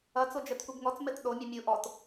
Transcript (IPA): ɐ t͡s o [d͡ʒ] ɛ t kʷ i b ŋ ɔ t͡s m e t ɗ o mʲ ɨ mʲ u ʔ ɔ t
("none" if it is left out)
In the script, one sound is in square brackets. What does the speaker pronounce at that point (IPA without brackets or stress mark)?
d͡ʒ